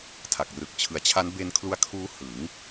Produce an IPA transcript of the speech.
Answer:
tʰa˨˩k̚rɯ˨˩k̚ t͡ɕʰɯ˨˩a̯t͡ɕʰa˦˥n be˧nkʰlu˧a̯ kʰuː˦˥ hɯ˩˦ŋ

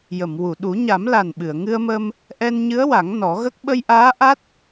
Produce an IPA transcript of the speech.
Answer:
jə˨˩˨m wu˨˩˨ɗu˨˩˦ ɲa˨˩˦mla˨˩n ɓɨ˨˩˨ə̯ŋɨ˧ə̯mə˧m | ʔɛ˧nɲɨ˧˥ə̯wa˨˩˦ŋ nɔ˨˩˦ɣə˦˥k̚ ɓə˧jʔaː˧˥ ʔa˦˥t̚

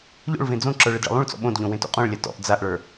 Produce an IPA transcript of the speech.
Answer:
ʎo̰ɭvẽ d͡zõǁə˞ ɭɘdɭə̰lˠũɭt͡sɔ̰ ɓõdʎõ wẽto̰qʼõɭlʲa tɔ̰ʔ d͡zaʔɭə˞

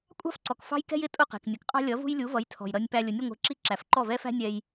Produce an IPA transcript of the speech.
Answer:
kʷʼɑ̤˥fǀɔ˩k fɑ̤˥jkɛ̤˥j ɪ˥˩ tʼʊ˥˩qɛ̤˩knʲʌ˩kqʼɑ̤˥ lʲʌ˩˥vṳ˥jlʲu˩˥vʌ˩˥j tʰɔ̤˩jɾʌ˧nʲ pæ˧lʲʊ˩˥nʲə˧ ŋʷɛ̤˧ǁi˥ ǁæ˩fǃɔ˥˩vɛ˥fæ̤˥ nʲɛ˧j

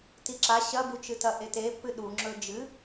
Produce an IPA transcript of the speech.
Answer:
tiǁa ɕɐbut͡ʃɨtɐ ʔetepːɨ ɗuŋ͡ǁɵ d͡ʒɨ

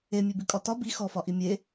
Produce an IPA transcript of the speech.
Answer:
emʲʉ bʉkʼɒtɒ bi xɔfɒʔi mʲe

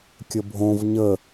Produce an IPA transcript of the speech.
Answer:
kʲəbʱõv ɲə

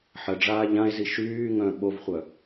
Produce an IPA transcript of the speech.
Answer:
ħə ɖ͡ʐaːʎãe̯zi ʃyːŋœ̃ ɓovχʷœ

